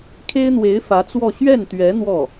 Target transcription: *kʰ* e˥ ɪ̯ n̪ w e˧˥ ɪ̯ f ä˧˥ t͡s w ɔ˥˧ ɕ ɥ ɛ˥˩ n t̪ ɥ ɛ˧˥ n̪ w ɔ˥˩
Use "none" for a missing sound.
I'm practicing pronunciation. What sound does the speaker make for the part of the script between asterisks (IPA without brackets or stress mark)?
kʰ